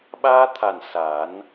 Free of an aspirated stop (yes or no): no